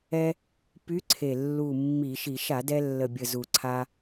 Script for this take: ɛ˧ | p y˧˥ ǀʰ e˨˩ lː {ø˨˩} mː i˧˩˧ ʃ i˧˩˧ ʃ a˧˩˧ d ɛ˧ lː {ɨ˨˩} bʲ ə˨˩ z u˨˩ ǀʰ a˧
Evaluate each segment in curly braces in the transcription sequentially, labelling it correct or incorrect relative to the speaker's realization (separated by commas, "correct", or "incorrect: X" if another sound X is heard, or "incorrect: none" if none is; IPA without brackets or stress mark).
incorrect: u˨˩, incorrect: ə˨˩